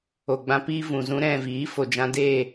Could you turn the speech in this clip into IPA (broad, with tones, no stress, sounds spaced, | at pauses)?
o˨ ɡ͡b ã˧ p iː˦ v ũ˨ z ũ˦ ɾ ɛ̃˦˨ v iː˨˦ f o˨ d͡ʒ ã˧ d eː˦˨